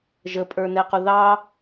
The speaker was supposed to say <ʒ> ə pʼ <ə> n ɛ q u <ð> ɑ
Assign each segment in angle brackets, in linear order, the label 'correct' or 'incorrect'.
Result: correct, incorrect, correct

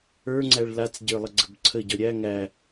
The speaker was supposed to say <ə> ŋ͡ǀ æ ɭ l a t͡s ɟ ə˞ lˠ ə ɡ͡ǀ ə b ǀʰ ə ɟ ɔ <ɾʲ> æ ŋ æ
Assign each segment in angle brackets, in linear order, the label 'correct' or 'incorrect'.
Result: incorrect, correct

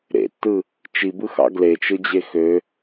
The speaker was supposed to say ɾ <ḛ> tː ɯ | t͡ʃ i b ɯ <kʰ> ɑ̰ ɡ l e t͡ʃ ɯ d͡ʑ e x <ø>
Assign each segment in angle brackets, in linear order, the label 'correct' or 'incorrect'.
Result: correct, incorrect, correct

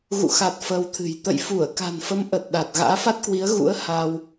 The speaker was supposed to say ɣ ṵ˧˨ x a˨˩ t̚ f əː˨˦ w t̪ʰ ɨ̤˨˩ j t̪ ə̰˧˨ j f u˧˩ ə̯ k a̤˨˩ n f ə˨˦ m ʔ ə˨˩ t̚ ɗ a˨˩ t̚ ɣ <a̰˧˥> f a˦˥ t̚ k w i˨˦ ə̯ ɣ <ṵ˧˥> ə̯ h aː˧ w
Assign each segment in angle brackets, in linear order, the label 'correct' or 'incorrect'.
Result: incorrect, correct

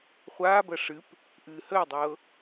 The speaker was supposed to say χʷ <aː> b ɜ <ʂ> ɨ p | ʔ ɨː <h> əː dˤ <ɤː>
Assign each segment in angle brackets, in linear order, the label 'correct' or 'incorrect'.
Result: correct, correct, correct, correct

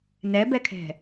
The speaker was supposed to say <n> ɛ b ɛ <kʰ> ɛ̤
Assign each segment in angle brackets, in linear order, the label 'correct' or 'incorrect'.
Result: correct, correct

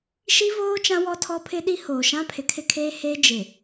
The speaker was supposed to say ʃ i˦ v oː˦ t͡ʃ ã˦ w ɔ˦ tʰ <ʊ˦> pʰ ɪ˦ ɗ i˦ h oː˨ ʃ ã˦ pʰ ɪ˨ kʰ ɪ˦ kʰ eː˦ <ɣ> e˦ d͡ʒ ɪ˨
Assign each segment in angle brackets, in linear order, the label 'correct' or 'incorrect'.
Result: incorrect, incorrect

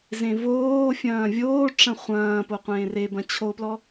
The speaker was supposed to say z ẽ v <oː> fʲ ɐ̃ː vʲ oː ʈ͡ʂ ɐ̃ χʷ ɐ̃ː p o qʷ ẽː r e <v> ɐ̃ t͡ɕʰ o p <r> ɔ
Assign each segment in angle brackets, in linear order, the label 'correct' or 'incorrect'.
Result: correct, incorrect, incorrect

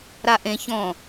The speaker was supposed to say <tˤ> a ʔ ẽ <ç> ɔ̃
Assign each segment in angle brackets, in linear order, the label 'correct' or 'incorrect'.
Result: incorrect, correct

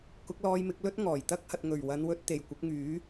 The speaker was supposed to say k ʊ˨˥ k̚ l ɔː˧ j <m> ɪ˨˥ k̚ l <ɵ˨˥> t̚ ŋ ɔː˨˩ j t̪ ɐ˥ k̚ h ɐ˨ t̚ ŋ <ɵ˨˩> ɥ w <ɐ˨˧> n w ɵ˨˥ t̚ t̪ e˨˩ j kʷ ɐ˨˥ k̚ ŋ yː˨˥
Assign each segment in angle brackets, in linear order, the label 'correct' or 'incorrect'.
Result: correct, incorrect, correct, correct

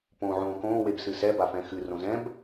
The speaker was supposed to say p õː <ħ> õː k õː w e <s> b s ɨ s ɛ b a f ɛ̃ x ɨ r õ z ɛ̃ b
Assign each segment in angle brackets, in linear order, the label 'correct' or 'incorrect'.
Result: incorrect, incorrect

